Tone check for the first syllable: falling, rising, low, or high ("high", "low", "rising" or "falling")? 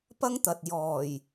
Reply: high